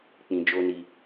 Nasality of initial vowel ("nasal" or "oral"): nasal